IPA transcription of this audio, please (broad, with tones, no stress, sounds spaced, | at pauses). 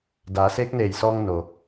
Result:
d aː˩˧ s eː˧˥ k̚ n eː˧˩ j s ɔː˧ ŋ n o˩